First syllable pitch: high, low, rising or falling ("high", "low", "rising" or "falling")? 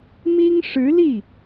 high